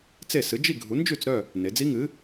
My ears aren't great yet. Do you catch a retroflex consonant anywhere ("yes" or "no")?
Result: no